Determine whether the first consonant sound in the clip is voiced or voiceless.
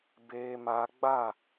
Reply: voiced